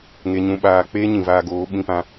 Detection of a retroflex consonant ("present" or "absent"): absent